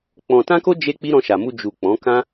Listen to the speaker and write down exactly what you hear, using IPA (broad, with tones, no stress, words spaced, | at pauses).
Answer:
k͡pɔ̃˧ tã˦ko˦ d͡ʒe˦k͡pi˦ ɾɔ̃˧ʃa˨mu˧ d͡ʒu˨ k͡pɔ̃˨˦ kã˦